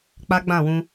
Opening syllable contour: high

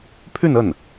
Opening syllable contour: falling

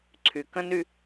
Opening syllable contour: low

